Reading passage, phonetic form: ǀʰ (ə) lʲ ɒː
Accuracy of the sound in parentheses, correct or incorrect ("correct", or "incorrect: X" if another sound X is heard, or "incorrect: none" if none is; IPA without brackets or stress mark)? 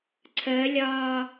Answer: correct